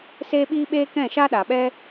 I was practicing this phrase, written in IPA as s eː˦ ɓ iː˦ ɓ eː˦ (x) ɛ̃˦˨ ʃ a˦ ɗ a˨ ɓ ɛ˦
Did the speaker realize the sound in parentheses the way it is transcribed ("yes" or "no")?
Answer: no